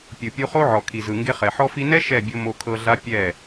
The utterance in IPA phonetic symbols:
pʲɯ˨pʲu˧χo˦ʕɔ˨ kʰi˨zɯ˨ŋɡe˧χɛ˨ ħɔ˧fi˧nɛ˦ ʃɛ˦˨ bʲo˧mo˧ kʰɤ˧ɮa˦ pʲɛ˦˨

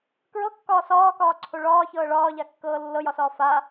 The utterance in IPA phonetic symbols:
kɹɤkːɒː sɒːkɒːǀʰo ɭɒːçɤː ɭɒːʎakːɤː lːɤjɒsɒː fa

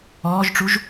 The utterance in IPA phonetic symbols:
ɔːʒʈ͡ʂuʒ

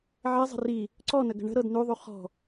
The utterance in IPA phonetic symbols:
ʕɛ zˤə̤ri | ǀɔnəɡə̤ ɳə̤ɾɤd nʉðˤʉ χɔ̤

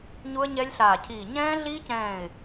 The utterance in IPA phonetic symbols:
ɲu˦˥ə̯ɲɛ˦˥lʲɬaː˧˩cʰiː˧˩ ɲɛ̃ː˦˥ɮiː˦˥cɛ̃ː˧˩ɪ̯

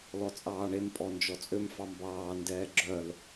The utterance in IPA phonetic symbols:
lɔt͡sʼɑːɳem pʼɔnd͡ʒɔt͡sʼøm fɑmbɑː ndɛːɡ͡ǁœl

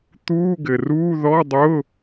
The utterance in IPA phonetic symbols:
t̪uː˧˥˧ɡɘ˩ruː˧˥˧ ðɔ˧˥˧dˤʊ˧˥˧

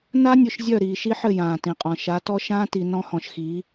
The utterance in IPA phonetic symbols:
na˦nʲʊ˨ʃ zʲœ˦˨ɾiː˨ʃi˦ħɘ˦˨ jãː˨tĩ˨qʼɔ̃˨ ʃa˨˦tɔ˦ ʃãː˦ti˨ nɔ̃˦hɔ̃˨ʃxi˨˦

